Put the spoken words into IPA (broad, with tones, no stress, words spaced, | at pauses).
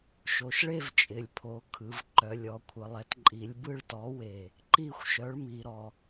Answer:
ʃo˩ʃɭe˦˨vt͡ʃʼɪ˩lʲ pʰo˩˧kʰɯ˩˧v ǃœ˩˧lʲɔ˩˧kʷʰɯ˩˧lˠɛ˩˥t ǃʼi˩˧lʲbɯ˦˨ɭtɔ˩˥ we˦˨ | ǃi˦˨xʷ ʃœ˩˥ɭmi˩˧ɾɔ˩˧